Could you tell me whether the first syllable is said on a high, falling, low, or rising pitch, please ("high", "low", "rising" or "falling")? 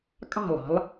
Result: falling